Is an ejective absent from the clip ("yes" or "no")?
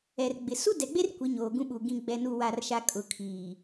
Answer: no